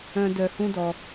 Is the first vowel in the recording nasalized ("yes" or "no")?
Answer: yes